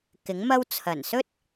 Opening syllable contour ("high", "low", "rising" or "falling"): rising